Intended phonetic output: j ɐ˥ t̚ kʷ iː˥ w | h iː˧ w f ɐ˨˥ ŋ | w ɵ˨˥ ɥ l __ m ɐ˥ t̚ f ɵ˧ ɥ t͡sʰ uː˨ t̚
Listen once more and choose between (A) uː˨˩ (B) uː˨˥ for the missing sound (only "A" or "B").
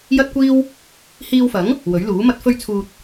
B